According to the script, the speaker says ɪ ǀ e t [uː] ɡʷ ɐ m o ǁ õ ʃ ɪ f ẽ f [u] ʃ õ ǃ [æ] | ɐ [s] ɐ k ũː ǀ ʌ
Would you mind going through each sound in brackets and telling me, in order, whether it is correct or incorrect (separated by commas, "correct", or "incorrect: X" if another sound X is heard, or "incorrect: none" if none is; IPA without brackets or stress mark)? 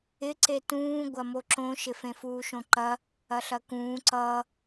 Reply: incorrect: ũː, incorrect: uː, incorrect: ɐ, incorrect: ɬ